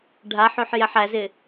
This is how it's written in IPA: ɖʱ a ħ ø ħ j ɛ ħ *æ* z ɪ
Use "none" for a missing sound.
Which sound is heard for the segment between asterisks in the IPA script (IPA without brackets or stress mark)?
æ